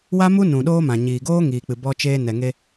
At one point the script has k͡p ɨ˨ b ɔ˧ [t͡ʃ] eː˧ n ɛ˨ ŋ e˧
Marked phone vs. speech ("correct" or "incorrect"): correct